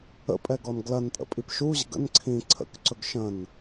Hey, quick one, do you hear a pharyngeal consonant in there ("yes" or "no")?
no